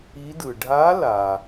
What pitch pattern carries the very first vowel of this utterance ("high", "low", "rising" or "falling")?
rising